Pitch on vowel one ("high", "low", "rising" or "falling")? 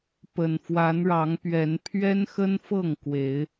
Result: low